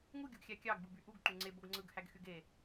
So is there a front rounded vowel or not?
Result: yes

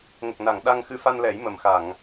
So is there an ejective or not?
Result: no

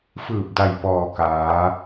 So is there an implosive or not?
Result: no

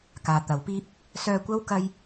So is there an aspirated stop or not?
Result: no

